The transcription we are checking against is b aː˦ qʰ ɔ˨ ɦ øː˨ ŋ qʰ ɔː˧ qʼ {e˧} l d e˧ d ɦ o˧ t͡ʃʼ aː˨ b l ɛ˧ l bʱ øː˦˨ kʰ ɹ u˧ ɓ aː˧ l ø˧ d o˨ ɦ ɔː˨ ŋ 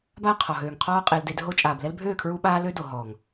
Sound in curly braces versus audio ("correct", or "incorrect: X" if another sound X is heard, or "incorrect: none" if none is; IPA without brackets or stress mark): correct